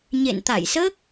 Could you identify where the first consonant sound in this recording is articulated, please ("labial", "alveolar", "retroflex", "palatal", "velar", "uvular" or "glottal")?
palatal